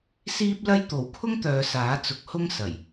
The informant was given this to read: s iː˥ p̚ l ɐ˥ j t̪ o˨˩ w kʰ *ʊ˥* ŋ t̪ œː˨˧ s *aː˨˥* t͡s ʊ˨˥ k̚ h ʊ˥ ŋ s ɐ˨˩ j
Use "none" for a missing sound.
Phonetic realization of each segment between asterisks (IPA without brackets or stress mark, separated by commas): ʊ˥, aː˨˥